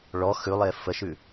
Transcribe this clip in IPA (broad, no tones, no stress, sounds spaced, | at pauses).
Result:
ɭ ɔ x ʉ lˠ e f ə ʃ ʉ